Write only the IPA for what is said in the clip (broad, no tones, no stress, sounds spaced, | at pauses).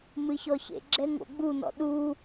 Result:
m ɨ ç ɔ ç ḛ ɡ͡ǁ ɛ ŋ o̰ ɡ͡b u n ɔ̰ ɗ u